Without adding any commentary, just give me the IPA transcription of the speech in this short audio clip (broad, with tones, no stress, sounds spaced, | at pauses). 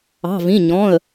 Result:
ɑ̤˩˧˩ v ĩ˩˧˩ ɲ ɔ̃˩˧˩ ə̯